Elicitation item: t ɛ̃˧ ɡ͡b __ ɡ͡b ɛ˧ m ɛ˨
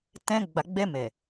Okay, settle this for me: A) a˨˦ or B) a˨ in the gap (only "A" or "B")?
B